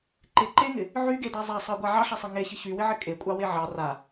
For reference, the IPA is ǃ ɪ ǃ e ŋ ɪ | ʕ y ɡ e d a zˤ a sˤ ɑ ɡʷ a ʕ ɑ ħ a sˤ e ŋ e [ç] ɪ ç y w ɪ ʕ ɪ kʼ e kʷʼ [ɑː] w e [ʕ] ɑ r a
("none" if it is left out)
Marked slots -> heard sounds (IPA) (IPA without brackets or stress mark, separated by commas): ç, ɑ, ʕ